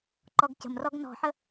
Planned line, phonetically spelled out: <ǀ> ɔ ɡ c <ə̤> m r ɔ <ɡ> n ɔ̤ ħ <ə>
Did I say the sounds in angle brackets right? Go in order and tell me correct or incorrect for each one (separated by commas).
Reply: incorrect, correct, correct, correct